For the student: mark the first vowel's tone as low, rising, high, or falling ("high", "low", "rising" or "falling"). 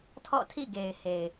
falling